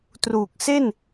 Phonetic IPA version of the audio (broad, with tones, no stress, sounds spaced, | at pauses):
t r uː˨˩ k̚ s e˥˩ n